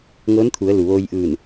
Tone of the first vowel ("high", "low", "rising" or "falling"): rising